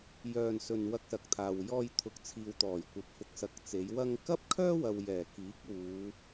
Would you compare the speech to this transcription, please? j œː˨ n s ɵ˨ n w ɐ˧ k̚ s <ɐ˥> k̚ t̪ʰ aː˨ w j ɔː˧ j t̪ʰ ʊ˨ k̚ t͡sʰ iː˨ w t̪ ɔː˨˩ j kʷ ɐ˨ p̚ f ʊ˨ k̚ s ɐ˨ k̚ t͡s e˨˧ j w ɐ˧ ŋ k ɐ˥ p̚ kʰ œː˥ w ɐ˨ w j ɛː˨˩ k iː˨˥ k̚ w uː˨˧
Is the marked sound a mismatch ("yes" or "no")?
yes